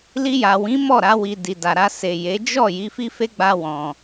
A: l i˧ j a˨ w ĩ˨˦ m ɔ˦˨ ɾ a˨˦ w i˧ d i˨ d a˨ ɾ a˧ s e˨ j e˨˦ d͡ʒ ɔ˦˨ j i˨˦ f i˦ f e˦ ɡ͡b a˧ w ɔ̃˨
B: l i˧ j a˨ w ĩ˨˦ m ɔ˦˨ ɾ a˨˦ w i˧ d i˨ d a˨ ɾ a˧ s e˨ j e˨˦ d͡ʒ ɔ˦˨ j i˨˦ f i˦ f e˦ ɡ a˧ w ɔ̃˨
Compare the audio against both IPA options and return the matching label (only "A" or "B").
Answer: A